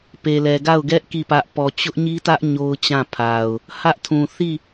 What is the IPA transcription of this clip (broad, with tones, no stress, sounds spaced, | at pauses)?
p e˨ l ɛ˨ ɡ a˦˨ ʊ̯ ɡ ɛ˦ ʔ k i˦˨ p ä˦ ʔ p ɔ˨ t͡ɕ ʊ˦ ʔ ɲ i˦ t ä˦ ʔ ɲ o˦ ʊ̯ t͡ɕ ã˦˨ pʰ a˨ ʊ̯ | h ä˦ ʔ tʰ ũ˨ θ i˦˨